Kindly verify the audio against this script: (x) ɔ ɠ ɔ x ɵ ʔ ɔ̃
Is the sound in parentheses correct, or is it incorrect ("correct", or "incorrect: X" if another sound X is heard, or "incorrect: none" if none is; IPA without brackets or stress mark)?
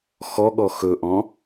correct